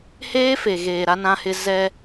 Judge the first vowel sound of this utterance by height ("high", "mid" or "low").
mid